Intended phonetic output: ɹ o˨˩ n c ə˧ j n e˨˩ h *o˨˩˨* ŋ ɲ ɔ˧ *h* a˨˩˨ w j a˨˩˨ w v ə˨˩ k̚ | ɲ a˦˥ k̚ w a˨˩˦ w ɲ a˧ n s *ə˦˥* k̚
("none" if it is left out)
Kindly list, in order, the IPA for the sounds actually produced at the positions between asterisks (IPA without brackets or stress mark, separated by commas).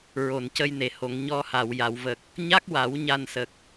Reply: o˨˩˨, h, ə˨˩